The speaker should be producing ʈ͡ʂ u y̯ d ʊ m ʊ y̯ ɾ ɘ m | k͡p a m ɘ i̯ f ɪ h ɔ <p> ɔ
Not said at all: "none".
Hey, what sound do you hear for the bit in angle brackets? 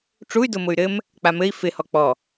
k͡p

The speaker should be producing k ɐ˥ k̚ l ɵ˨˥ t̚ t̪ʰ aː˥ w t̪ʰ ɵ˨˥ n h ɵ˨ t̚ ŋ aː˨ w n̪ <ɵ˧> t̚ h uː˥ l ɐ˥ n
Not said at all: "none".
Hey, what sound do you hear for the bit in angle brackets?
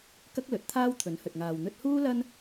ɵ˥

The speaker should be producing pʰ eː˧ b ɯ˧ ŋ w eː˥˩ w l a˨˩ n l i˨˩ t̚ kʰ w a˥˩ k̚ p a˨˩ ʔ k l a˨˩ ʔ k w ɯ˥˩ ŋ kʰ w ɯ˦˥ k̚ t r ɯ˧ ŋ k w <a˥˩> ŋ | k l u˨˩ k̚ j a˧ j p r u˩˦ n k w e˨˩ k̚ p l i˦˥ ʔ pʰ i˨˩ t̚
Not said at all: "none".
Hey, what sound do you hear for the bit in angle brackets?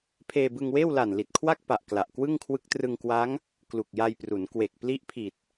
a˦˥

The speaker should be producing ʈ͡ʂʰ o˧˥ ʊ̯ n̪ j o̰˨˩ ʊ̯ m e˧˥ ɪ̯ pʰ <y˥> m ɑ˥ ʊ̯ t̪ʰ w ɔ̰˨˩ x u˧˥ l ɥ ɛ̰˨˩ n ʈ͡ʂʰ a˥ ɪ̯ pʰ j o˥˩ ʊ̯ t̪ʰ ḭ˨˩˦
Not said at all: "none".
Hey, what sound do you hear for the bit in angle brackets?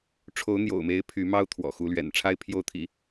y˧˥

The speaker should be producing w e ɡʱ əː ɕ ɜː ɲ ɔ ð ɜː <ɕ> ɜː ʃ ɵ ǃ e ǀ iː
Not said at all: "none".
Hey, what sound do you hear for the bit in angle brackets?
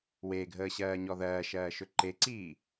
ʃ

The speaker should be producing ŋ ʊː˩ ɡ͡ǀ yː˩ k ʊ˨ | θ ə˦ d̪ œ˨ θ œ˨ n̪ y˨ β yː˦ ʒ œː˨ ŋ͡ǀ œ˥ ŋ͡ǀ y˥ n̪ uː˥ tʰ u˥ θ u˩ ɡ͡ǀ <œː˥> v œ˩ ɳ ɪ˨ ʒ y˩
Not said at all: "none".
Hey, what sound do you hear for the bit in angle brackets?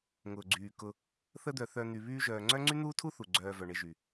œː˨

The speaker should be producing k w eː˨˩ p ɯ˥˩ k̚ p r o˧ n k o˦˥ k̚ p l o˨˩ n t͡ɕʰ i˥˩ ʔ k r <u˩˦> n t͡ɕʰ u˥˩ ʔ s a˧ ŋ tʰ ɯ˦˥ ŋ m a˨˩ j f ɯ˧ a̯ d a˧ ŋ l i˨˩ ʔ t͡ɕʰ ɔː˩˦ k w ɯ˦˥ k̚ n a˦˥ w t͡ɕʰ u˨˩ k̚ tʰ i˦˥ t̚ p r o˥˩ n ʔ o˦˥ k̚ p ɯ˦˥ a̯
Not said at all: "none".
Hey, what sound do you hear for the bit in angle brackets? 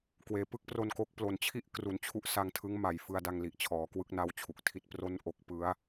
u˩˦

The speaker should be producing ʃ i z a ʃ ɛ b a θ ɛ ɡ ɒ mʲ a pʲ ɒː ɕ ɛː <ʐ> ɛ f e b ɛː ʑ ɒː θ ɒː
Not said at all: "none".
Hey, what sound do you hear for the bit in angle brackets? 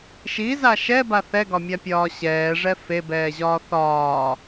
ʐ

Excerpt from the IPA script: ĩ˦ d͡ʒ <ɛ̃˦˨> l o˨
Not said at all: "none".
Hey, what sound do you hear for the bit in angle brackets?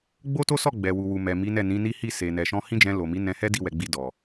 ɛ̃˧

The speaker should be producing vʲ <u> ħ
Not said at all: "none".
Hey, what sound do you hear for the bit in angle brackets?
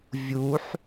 u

